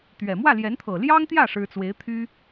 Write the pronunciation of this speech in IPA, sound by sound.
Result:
t̪ɥɛ˨˩ mwä˥˩ljɛ˧˥nt̪ʰɤ˨˩ ljɑ˥ŋt̪jä˥˩ ʂɻ̩˥ t͡swe˧˥ɪ̯t̪ʰy˥

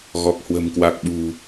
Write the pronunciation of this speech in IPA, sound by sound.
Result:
ɣɔ˨˩k̚ hwə̤˨˩mkwa˨˩k̚ɓṳ˨˩

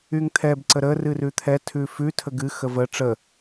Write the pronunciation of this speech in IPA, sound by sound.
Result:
yŋt̪ʰɛb ǀəɾə rɨrʉt̪ʰɛ tʰʉfʉ tʰəɡɨ xəvə ʈ͡ʂə

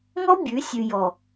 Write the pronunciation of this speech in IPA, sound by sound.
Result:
ŋɔ˦ bʲʉ˨˦ sʲʉ˨jɔ˨

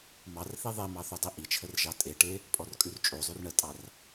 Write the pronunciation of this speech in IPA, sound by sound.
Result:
mɑrθi ðˤemɑ θodˤiʔit͡ʃʰər ʒɑtʼeʈe | pʼɔrkʼʉrt͡ʃʼozˤʉr ɳətʼɑr

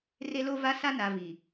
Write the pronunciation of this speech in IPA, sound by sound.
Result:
re˦lo˦ va˦sa˦na˨ vi˨

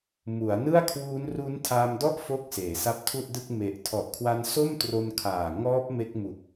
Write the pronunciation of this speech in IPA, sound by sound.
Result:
mu˩˦a̯nɯ˥˩a̯kʰwuː˦˥n ru˦˥ntʰaː˧mdɔ˥˩ʔ fo˥˩k̚ seː˩˦sa˦˥p̚tʰu˥˩ʔdɯ˥˩k̚ me˨˩ʔ tʰɔ˨˩ʔkʰwa˧nso˥˩mtro˧n kʰaː˨˩ ŋɔː˦˥p̚ me˦˥k̚mu˨˩k̚

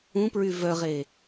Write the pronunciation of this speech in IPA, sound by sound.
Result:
ũpɹy vœʁe

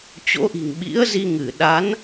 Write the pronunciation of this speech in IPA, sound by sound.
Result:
t͡ɕo̰˧˥ʔi̤˨˩ŋɓḭ˧˥ə̯zi˧ ŋɨ˧˩ ɗa˨˦n

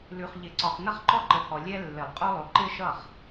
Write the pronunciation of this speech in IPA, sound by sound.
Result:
lʉ˨χ ʎɪ˨˩˦ǀɒ˨χnʌ˥χ ǃɔ˥ǃə˨˦hɔ˨ lʲɛ˥ lːɪ˨˩˦lˠqʼo˥lˠo˨ ǃɪ˥˧ʃʌ˥˩χ

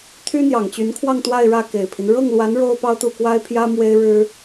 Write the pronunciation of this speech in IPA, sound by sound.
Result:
t̪ʰy˥n̪jɑ˨˩ŋt͡ɕy˧˥nkʰwɑ˥˧ŋ t̪wa˥˧ɪ̯ɻä˥˩ke˨˩ɪ̯pʰi˦n ɻɤ˥˩ŋlwa˧˥n ɻo˥ʊ̯pɑ˥ʊ̯t̪u˥˩ kwa˥ɪ̯pʰjä˥ mwe˥ɪ̯ɻɻ̩˥

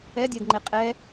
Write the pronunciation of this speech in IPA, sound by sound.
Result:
ɛdʲɛdŋ͡ǃe qʼɛ

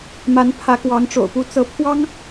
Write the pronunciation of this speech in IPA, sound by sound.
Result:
ma˧˥npʰä˧˥kwɑ˧˥ŋ ʈ͡ʂo̰˨˩ʊ̯pu˧˥ t͡sɤ˧˥ pʰwɑ˥ŋ

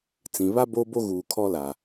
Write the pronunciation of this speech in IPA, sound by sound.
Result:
t͡sĩ˨βa˦ bo˦bo˦ ɣuː˨kʰɔ˦ la˨

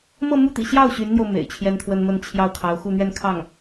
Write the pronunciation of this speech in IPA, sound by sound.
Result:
mɤ˥˧mu˥˩t̪ḭ˨˩ɕjɑ˥˩ʊ̯ ɕy˧˥nn̪jo˧ʊ̯ mḛ˨˩ɪ̯t͡ɕʰjɛ˥nt̪ʰwə˥nmə˥˧n t͡ɕʰjɑ˥˩ʊ̯kʰɑ˧˥ʊ̯ xu˥˧ n̪ɥɛ˥˧nkʰɑ˥˩ŋ

